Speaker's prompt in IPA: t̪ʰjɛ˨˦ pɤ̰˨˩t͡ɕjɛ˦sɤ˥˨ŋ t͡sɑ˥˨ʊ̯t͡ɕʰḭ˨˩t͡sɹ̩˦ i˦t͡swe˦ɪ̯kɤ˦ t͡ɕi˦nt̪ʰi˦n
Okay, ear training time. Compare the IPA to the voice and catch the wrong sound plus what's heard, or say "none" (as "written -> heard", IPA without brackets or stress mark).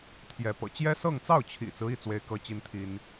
none